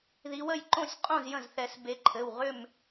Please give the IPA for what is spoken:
ð i˨˦ w ə˩˧˩ j ǃ õ˥˨ sʲ qʼ õ˥˨ z j ə̃˧˩ z θ ɛ˨˩˦ s b e˨˦ ǃʰ ɘ˩˧˩ w ʁ ʏ˥˨ m

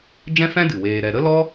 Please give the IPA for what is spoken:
d͡ʒ ɛ̃˦ f ɛ̃˦ d ɨ˨ w eː˧ ɾ ɛ˧ ɾ ə˦ l ɔ˦

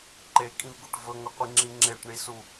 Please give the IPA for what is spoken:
ǃ e kʼ ĩ v ɡ u ʈ v ɵ ŋ ɵ qʷ i ŋ͡ǁ ĩ ŋ͡ǁ e ʈ ɳ i s u

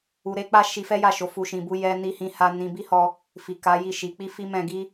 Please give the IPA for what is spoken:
u˨ ɾ e˧ k͡p a˦ ʃ i˧ f ɛ˦ j a˦˨ ʃ o˨˦ f u˧ ʃ ĩ˧ b u˦ j ɛ˦ n i˦ h ĩ˦ h a˧ n ĩ˧ b i˦ h ɔ˧ | f i˨ k a˨˦ j i˦˨ ʃ i˨˦ k͡p i˦ f i˦ m ɛ̃˧ ɡ i˦

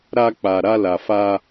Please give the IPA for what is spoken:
ɾ a˧ k͡p a˨ ɾ a˧ l a˨ f a˧

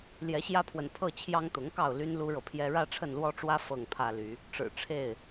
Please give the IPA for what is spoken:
l j ɛ˨˦ ɕ j ä˦ pʰ w ə˨ n pʰ ɤ˥˨ t͡ɕʰ j ɑ˦ ŋ t̪ ʊ˨˦ ŋ k ɑ˥˨ ʊ̯ l y˦ n l u˦ ɻ ɤ˨ pʰ j ɛ˦ ɻ ä˦ ʈ͡ʂʰ ə˥˨ n l w ɔ˦ ʈ͡ʂ w ä˦ f ɤ˥˨ ŋ pʰ ä˦ l y˨˦ | ʈ͡ʂ ɻ̩˨˩ ʈ͡ʂʰ e˥˨ ɪ̯

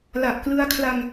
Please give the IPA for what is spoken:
l a˨˩ ʔ k l ɯ˧ a̯ kʰ l a˧ ŋ

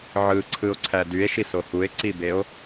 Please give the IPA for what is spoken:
ʕ ɯ ǀʰ ɯ o̯ ǀʰ æ d y e̯ ʃ i s o h u e̯ ǀ i b e o̯

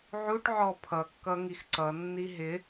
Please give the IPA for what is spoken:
ʕ u ʈ ʕ ɔ pʰ ʌ kː ʌ ŋ i x ǀ ʌ nː i ɦ ɪ

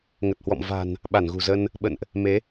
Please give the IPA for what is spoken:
ŋ ə˨˩ t̚ h w ɔ̰˧˨ m v a̤˨˩ n | ɓ a˧˩ n ɣ ṳ˨˩ z ə˧ n | ɓ ə̰˧˨ n ʔ | m e˨˦

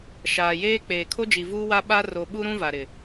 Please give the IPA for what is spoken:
ʃ aː˨ j eː˦ k͡p eː˨ kʰ o˦ d͡ʒ i˨ v uː˦ w a˦ ɓ a˦ r o˨ ɓ u˦ ɾ ũ˦ v a˨ ɾ ɪ˨

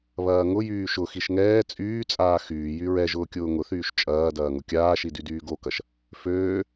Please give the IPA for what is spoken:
β ɐː ŋ ʊ j yː ʃ ʊ x i ʃ ŋ ɛː t͡sʼ yː t͡sʼ aː x yː j y ɹ ɛ ʒ ʊː kʲ ʊː ŋ ʊ θ yː ʃ t͡ʃʼ ɐː d ɐː ŋ ʊ kʲ aː ʃ i d y d yː ɡ o k ɐ ʃ | f øː

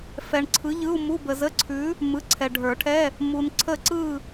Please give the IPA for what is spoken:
f ɛ˨ ɳ ǀʰ ɯ˨˥ ʎ ɯ˧˥˧ u̯ m u˧˥˧ b ə˨ z ə˧˥˧ ǀʰ ʉ˨˥ | m ɯ˨˥ ǀʰ ɛ˨ ɖʱ ə˞˨˩˦ ʈʰ ɛ˧˥˧ | m u˨ n ǀʰ ə˦˨ ǀ ɯ˦˨

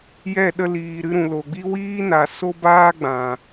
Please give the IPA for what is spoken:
j ɛ˦˨ ɗ ə˧ l iː˨ ɾ ɨ˧ ɾ ũ˨ l o˨ ɡ͡b i˦ w iː˦ n a˨ s o˦ b aː˦ ɡ͡b ã˨

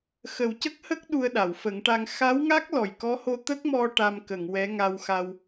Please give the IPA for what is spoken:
x ə˨˩ w c ə˦˥ k̚ h ə˦˥ k̚ ɗ u˧ ə̯ ɗ a˨˩˨ w f ə˨˩˦ ŋ ʈ a˧ ŋ x a˧˥ w ŋ a˦˥ k̚ l ɔ˨˩ j k ɔ˧˥ h o˧ t̪ ə˦˥ k̚ m ɔ˧ ʈ a˧ m k ə˨˩˨ ŋ w ɛ˧˥ ŋ a˧ w x a˧ w

